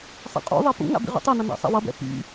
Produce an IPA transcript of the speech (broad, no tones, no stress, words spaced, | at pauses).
sˤɛ̰qʼṵðˤɛ pṵŋa̰ bḭʁṵtˤɛnʌ na̰sˤḛwʌbɛ̰ pḭ